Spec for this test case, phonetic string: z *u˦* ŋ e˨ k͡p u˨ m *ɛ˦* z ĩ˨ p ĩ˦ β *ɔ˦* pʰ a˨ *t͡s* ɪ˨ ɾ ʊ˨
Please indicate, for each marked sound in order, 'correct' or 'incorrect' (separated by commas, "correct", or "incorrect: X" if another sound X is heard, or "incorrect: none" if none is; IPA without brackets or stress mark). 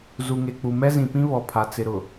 incorrect: u˨, correct, incorrect: ɔ˨, correct